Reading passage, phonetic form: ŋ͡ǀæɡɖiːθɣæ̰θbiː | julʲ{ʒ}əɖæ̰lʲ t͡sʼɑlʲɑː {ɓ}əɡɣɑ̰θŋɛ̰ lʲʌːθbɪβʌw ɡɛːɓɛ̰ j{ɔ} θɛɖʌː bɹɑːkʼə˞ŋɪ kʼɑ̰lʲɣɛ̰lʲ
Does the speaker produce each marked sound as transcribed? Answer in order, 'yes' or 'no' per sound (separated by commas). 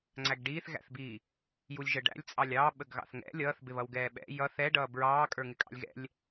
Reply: yes, yes, no